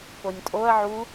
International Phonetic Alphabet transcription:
p o nʲ tʼ o ɐ̯ ʕ u

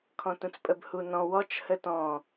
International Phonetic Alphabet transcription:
kʰ ɔ̃ t ũ t͡s pʼ ə b h u n ɔ̃ w ɔ t͡ʃ h ə t ɔ̃

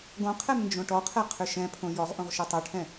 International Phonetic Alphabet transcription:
ɡ õ qʰ ɛ m n d͡ʒ õ ʈ ɔ qʰ ɛ qʰ ʏ ʃ ɛ̃ pʰ õ j ɔ ʁ ʔ õ ʁ ʃ o tˤ o ʈʰ ɛ̃

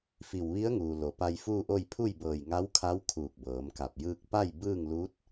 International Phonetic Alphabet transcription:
f i˧˩ w ʋ i˧˥ ə̯ ŋ uː˩ l o˩˧ p a˧ j f uː˥˨ ʔ o˥˨ j pʰ u˥˨ j b ɤː˧˩ j ŋ a˧˥ w kʰ a˧˥ w kʰ uː˧˩ k̚ b ɤː˩˧ m k a˧˩ p̚ j ɯː˧ k̚ p a˥˨ j b ɯː˥˨ ŋ l uː˧˥ t̚

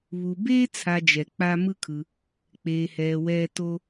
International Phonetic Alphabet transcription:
β u˨ b eː˥ t͡sʰ a˨ d͡ʒ ɛ˩ k͡p a˦ m ɯ˥ kʰ ɯ˨ | k͡p eː˨ h ɛː˨ w ɛː˦ t o˥

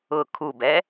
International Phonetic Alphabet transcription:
ʊ kʰ u b ɛ

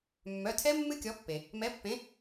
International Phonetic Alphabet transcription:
mː œ˩˧˩ tʰ ɛ˦˥ mː ɨ˦˥ kʲ ɔ˨˥ pː e˩ | m ɛ˨˥ pː ẽ˨˥

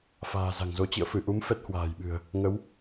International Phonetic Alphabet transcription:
f a̤ː˨˩ z a̤˨˩ ŋ z o˨˦ t͡ɕ ḭ˧˨ ə̯ f ɨ˧˩ ʔ u˨˦ m f ɛ˦˥ t̚ h w a̤ː˨˩ j ɓ ɨ̤˨˩ ə̯ | ŋ ə˨˦ w

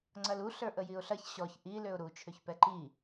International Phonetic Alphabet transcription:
ŋ͡ǀ ɐ l u ɬ ə˞ ʔ ə j i ʊ̯ ɬ ɐ ç ɕ ɔ ç ʔ i l ø ʊ̯ ɾ u t͡ʃʰ ø ç p ɛ ǃ i

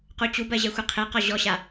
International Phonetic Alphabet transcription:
q u t͡ɕ u b ɜ ʑ ɛ xʷ e qʰ e q ɔ ʑ ɔ ɕ a

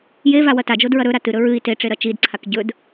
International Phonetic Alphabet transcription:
j e v a w ɐ t a d͡ʒ o d ɹ ɐ ɾ ɵ ɾ a t ɨ ɾ ɵ ɹ ɨ i̯ t e ʈ͡ʂ e ɾ ɐ t͡ʃ i d ǀʰ a k ɟ ɵ d

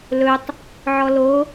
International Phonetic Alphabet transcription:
l ɵ tˤ | ʕ ɔ l o

